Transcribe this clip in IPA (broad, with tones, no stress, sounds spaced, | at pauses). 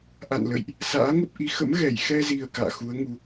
ʔ a̰˧˨ n l ə̰˧˨ j ʔ | s a̰ː˧˥ ŋ ə˦˥ p̚ ʔ i˨˦ x ə̰˧˥ m ɣ ɛ˧˩ j x ɛ˧ z i˨˩ ə̯ k a̰ː˧˨ x u˨˦ ə̯ ŋ u˧